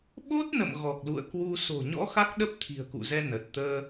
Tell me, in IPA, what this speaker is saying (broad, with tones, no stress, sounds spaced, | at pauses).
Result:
ɓ o˦˥ t̚ n ə̰˧˨ m ɣ ɔ˨˩ k̚ l ṵ˧˨ ə̯ k w u˧ s o̤˨˩ ɲ ɔ̰˧˥ x a˦˥ k̚ ɗ ə˦˥ p̚ t̪ʰ i̤˨˩ ə̯ k ṵ˧˨ z ɛ˧ n ə˨˩ t̚ t̪ əː˧